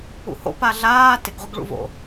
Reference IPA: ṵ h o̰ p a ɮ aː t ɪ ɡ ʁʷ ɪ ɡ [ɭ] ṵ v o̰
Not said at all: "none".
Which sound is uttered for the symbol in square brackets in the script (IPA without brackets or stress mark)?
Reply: ɭ